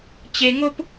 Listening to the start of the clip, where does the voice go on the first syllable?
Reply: high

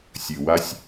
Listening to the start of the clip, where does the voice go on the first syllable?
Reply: low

